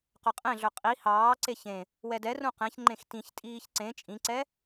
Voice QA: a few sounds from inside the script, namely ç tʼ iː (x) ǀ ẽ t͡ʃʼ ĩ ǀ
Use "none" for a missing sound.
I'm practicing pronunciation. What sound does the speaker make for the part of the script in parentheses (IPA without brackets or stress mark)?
ç